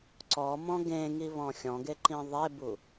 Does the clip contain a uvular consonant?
no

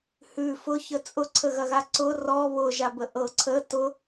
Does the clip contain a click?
yes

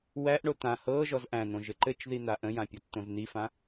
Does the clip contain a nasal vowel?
yes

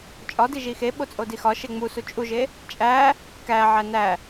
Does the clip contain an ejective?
yes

